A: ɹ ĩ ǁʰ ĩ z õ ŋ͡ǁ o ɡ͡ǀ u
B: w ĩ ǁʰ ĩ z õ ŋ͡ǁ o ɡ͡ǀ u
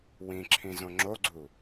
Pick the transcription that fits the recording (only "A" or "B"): B